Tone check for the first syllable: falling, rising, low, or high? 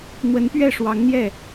rising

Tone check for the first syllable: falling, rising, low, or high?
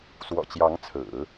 low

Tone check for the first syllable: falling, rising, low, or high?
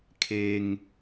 low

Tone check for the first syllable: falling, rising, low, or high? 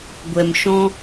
low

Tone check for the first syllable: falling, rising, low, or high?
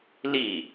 falling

